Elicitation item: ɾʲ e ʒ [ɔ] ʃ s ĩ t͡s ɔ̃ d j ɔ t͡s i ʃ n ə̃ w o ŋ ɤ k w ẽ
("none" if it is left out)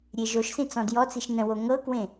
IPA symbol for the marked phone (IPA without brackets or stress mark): o